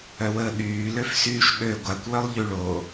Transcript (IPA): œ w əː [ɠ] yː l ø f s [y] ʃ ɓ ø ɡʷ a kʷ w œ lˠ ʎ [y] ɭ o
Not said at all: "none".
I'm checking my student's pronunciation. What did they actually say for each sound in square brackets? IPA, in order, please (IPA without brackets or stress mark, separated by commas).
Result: ɠ, yː, y